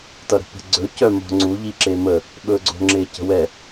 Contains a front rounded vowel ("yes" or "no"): yes